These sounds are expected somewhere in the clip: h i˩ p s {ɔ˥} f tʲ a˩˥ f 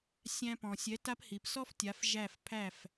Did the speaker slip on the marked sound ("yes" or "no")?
no